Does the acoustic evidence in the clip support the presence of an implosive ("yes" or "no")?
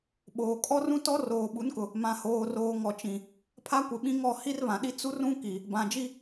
yes